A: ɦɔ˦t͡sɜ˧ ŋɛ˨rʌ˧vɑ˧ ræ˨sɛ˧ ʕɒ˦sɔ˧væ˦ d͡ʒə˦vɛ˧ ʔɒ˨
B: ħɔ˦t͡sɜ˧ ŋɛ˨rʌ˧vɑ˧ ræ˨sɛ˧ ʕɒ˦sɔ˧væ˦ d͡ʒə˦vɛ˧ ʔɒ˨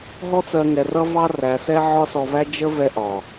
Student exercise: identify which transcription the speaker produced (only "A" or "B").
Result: A